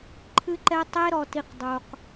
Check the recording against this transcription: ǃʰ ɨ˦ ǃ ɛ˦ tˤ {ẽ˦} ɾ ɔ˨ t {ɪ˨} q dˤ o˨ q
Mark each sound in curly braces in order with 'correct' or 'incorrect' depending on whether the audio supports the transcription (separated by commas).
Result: incorrect, incorrect